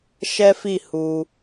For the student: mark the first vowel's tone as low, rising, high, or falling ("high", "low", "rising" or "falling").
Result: high